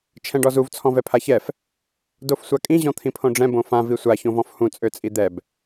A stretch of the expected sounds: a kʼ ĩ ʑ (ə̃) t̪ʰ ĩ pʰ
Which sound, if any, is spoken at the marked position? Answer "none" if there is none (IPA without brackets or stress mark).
ɔ̃